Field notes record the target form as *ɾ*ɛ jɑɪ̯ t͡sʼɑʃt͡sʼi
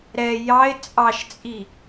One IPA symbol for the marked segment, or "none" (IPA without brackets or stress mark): ɾ